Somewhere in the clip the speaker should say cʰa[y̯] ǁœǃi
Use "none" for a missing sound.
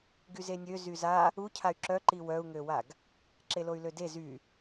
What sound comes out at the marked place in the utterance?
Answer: y̯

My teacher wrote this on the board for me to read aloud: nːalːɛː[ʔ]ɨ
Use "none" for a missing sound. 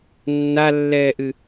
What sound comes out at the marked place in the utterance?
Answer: ʔ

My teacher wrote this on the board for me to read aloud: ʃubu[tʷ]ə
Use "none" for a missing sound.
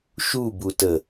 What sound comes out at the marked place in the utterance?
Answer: t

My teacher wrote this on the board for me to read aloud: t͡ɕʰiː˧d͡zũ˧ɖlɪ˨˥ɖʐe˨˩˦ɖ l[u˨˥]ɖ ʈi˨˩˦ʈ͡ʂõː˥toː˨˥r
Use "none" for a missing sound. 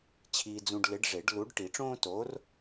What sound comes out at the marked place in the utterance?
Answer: u˨˥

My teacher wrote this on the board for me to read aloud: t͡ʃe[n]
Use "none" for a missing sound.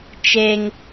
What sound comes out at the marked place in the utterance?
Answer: ŋ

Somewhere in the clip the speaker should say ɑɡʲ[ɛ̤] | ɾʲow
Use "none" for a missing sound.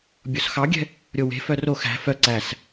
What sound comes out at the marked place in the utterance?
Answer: ɛ̤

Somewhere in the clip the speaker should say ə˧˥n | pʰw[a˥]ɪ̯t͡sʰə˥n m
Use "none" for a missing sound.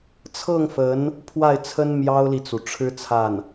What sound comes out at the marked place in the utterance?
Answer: a˥˩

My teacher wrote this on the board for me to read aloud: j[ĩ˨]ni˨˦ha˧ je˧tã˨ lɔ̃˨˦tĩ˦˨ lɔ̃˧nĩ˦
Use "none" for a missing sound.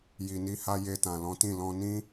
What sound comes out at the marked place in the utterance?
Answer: i˨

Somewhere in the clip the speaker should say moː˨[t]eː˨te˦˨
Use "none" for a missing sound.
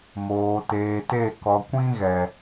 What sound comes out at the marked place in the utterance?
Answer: t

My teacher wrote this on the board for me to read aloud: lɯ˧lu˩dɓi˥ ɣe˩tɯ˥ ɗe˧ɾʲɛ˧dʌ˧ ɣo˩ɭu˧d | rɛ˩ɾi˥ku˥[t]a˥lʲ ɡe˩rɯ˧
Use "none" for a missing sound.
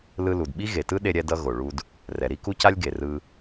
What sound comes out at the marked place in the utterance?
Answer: c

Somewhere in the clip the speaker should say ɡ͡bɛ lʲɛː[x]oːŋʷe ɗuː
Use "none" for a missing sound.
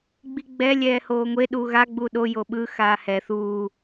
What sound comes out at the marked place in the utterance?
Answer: h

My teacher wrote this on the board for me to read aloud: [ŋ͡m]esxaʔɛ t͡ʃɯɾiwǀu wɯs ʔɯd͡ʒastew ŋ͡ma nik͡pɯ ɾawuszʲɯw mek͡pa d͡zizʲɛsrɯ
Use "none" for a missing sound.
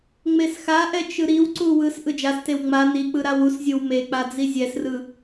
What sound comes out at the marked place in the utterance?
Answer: ŋ͡m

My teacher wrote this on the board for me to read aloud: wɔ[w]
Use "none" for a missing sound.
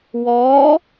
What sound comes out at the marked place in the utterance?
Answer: none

